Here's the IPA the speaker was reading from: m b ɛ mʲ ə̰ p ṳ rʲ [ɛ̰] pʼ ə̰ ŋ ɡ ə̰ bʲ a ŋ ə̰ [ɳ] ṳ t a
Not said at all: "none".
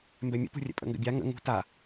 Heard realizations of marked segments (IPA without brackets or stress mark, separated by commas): ɛ̰, ŋ